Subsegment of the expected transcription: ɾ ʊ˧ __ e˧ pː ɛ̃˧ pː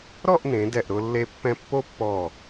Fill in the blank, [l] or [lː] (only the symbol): lː